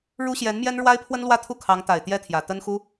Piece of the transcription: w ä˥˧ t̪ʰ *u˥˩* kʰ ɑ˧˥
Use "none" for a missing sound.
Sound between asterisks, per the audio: u˥˩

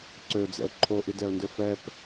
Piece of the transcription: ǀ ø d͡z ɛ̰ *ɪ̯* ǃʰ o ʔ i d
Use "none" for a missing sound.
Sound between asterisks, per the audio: ʊ̯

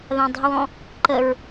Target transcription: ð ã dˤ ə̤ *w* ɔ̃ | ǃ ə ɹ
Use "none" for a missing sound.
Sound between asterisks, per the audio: w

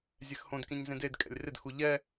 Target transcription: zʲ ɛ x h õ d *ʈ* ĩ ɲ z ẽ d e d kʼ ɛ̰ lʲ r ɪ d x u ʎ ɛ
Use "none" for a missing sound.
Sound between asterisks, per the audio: k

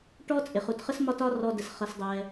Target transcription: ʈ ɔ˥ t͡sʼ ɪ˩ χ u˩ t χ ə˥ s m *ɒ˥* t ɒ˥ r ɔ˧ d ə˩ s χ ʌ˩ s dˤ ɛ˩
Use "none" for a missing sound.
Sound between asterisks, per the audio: ɒ˥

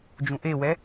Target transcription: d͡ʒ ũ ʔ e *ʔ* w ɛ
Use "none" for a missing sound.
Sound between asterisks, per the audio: none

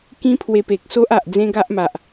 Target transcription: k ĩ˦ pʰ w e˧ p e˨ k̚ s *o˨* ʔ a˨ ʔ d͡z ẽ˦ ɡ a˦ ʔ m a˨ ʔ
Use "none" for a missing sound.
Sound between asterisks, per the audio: o˦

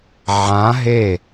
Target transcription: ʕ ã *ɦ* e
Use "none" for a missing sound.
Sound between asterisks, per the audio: ɦ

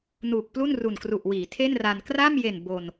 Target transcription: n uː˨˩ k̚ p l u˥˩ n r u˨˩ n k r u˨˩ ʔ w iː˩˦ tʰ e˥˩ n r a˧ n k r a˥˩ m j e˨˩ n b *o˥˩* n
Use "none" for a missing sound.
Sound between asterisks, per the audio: o˧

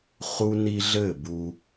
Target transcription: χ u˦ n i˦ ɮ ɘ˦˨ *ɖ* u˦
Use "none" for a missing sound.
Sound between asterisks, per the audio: b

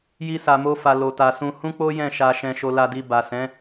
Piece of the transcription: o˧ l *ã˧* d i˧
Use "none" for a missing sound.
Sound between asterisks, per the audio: a˧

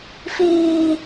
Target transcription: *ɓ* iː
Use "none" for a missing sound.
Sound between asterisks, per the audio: f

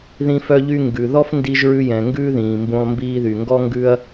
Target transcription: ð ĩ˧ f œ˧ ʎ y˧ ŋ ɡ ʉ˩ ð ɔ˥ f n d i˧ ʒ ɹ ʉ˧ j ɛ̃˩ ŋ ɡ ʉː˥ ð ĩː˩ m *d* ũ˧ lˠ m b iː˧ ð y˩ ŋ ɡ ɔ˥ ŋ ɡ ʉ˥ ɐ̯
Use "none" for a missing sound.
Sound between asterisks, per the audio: b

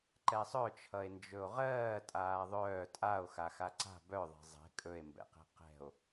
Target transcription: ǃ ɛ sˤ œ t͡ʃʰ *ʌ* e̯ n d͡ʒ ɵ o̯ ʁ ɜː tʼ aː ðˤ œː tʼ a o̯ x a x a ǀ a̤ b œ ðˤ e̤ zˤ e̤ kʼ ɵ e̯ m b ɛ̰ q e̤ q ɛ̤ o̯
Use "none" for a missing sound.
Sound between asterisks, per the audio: ʌ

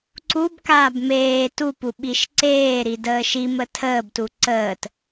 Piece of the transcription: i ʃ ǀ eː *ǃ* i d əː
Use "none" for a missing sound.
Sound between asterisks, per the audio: ɾ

